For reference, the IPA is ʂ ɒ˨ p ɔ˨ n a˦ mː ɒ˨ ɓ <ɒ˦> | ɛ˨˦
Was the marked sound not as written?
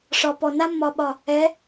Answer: yes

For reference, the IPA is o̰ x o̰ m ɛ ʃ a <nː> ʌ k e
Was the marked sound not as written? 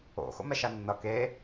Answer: no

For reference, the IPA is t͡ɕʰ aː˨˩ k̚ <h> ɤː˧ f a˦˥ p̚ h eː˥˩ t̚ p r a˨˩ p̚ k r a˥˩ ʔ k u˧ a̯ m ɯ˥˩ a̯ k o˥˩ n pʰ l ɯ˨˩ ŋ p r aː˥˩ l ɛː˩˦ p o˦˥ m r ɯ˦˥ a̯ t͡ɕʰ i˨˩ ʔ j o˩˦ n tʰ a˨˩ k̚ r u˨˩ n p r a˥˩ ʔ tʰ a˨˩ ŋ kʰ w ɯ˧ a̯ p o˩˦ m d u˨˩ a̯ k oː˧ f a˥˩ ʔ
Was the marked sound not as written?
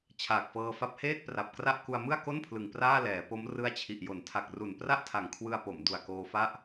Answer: yes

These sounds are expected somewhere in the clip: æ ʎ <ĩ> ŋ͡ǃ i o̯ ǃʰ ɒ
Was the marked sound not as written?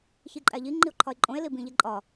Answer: yes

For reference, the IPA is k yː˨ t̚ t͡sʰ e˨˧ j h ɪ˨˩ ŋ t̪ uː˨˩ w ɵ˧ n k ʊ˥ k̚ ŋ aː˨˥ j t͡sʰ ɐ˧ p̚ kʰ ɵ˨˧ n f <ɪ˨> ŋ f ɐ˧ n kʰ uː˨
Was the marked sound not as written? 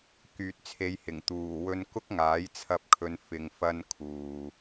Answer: no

